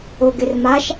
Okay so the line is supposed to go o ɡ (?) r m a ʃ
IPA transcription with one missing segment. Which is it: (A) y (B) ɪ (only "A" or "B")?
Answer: B